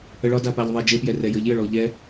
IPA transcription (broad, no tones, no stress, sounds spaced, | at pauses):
ə ɭ ɒ d a p a ʎ ðˤ e d͡ʒ e p j ɛ r ɛ j ə ʎ j ə ɭ ɔ ʎ ɛ